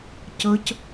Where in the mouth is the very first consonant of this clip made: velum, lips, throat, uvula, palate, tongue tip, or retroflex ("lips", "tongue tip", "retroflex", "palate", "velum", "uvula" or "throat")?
palate